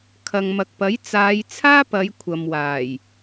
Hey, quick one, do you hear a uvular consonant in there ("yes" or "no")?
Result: no